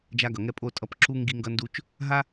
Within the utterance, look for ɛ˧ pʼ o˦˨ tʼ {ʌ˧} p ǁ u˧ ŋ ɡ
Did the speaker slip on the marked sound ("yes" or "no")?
no